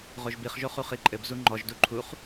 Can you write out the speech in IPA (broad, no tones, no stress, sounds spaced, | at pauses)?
ʁ o ʒ b i χ ʒ o χ u χ i ǃʼ ɘ b z u ŋ͡ǃ ɔ ʒ d u ǃʰ u χ